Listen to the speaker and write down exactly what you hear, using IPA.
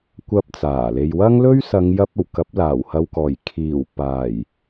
kʷɐ˧p̚t͡saː˨˩le˨j wɐ˥ŋlɵ˥ɥsɐ˨˧ŋ jɐ˧p̚ ɐ˨˩wkɐ˨˥p̚laː˨˩w hɐ˨wkɔː˨˩j kʰiː˨˩wpaː˨˩j

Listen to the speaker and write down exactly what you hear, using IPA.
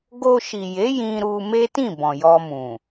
ɡo˧ʃi˨je˨˦ jĩ˧ ɾu˧me˦tĩ˦˨ bɔ̃˨jɔ˧mũ˨

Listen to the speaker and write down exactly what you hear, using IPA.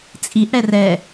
t͡sʼiʔ ɽɛrɛ

